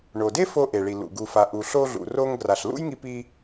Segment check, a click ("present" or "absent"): absent